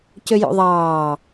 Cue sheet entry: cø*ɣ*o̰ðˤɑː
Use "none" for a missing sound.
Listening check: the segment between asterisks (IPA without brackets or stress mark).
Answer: j